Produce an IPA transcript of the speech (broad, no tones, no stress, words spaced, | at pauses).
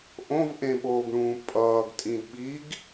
ʔõvʔẽɓoːɡɳũː pʼʌːɡtʼĩdɓiːɡ